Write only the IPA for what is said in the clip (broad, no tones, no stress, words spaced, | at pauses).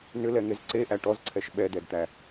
nʏlɛŋez ǀeʔæ ʈɔzǀʰɛʃ ɓɛdɛdt̪æ